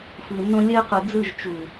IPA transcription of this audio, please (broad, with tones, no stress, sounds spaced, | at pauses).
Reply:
f ɯ˨ nː õ˦ lʲ ɜ˦ q u˨ d͡z ɯ˦˨ ʒ t͡ʃ u˨